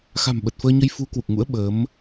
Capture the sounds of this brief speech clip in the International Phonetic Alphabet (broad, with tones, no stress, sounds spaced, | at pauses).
x a̤˨˩ m ɓ ə˨˩ t̚ f əː˧ ɲ ə˧ j f u˨˦ k w u˨˩ k̚ ŋ ṵ˧˥ ə̯ ɓ əː˨˦ m